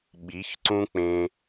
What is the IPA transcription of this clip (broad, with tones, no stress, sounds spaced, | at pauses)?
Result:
ɓ i˨˦ ç ǀ ũ˦ k͡p ẽ˧